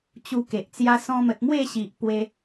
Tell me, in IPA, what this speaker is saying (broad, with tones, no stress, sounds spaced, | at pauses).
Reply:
t͡ɕ u˧ k e˨ ʔ t͡s j a˧ s ɔ̃˧ m ə˨ t̚ m w e˥˧ ɕ i˨ ʔ p w e˧